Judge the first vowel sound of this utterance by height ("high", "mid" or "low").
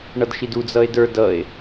mid